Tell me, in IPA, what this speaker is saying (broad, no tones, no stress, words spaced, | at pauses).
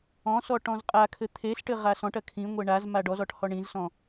ɔ̃sɔ ʈɔ̃zqʼakʰɘ t̪ʰesʈɘ ʁasɔ̃ʈɐ kʰĩŋʷe ɳaz maɖɔzɔʈ hɔɳĩzsɔ̃